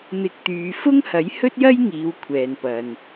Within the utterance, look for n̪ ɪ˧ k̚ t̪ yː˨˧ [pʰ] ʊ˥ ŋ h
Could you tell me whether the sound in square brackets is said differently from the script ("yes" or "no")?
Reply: yes